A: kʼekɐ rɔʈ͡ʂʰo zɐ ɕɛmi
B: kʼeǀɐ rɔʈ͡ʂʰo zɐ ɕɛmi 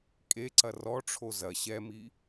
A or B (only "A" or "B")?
B